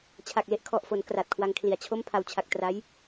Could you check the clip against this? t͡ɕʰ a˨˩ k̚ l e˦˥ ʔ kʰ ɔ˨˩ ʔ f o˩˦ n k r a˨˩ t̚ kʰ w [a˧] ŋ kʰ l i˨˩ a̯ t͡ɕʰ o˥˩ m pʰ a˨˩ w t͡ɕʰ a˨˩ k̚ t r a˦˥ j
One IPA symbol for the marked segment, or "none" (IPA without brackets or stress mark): a˧